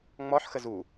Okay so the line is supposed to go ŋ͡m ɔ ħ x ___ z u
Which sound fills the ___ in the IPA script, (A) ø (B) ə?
B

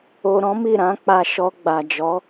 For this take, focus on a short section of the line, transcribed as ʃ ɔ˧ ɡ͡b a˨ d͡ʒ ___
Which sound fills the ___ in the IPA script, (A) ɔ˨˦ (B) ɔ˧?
A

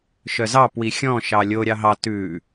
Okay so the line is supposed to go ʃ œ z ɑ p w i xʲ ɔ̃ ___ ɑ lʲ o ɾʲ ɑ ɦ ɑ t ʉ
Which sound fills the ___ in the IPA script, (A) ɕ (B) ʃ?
B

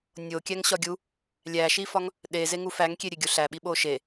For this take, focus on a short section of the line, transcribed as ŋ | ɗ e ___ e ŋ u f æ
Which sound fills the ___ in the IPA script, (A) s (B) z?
B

